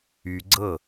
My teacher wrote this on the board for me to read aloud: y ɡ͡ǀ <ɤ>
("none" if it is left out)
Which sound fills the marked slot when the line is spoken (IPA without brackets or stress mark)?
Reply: ɤ